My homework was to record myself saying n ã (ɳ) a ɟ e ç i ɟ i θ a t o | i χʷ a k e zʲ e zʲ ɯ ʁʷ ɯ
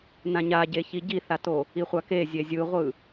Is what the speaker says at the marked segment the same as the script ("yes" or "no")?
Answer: no